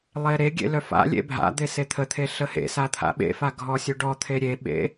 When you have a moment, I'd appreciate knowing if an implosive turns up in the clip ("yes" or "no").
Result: yes